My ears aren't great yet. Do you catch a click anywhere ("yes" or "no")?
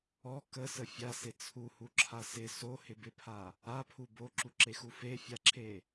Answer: yes